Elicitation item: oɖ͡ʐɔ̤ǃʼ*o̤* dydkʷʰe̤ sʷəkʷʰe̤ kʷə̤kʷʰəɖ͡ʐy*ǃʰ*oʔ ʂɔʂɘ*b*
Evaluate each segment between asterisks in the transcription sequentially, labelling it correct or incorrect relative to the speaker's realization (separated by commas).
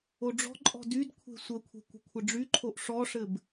incorrect, correct, correct